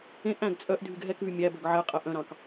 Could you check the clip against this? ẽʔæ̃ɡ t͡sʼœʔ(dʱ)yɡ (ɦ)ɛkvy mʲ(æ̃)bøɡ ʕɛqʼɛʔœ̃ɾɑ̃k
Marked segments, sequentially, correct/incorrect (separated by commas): correct, correct, incorrect